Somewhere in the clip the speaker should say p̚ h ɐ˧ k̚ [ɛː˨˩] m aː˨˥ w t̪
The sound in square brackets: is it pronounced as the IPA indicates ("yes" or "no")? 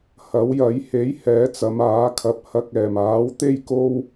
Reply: yes